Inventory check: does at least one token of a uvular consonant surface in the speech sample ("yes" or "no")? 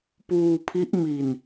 no